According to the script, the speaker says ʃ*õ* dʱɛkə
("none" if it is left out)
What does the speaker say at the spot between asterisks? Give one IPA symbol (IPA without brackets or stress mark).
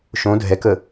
õ